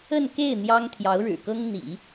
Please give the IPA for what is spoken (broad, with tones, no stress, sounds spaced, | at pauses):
ə˥˧ n k e˥˩ ɪ̯ n̪ j ɑ˥ ŋ t̪ʰ j ɑ˧˥ ʊ̯ ɻ ɻ̩˨˩ k ɤ˥ ŋ n̪ ḭ˨˩˦